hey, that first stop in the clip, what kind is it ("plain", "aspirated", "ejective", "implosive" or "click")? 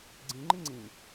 click